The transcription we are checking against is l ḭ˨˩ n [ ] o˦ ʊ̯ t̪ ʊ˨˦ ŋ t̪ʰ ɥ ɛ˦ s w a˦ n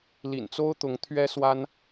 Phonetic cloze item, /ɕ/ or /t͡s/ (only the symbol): t͡s